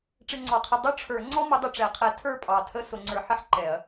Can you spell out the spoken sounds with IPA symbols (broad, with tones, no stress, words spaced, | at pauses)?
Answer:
ʈ͡ʂɪ˧ŋ͡ǀɔ˨˩qʰɪ˧ dˤʊ˥˧ʈ͡ʂʰə˞˨˩˦ ŋ͡ǀɔ˥mʊ˨˥ dˤʊ˧ʈ͡ʂɛ˨˩˦qʰɛ˨˥ tʰə˞˥˧pʼɑ˨˩tʰə˥˧ sʊ˧ŋ͡ǀə˞˧ħɪ˥ħ ǃɛ˨˩˦ɐ̯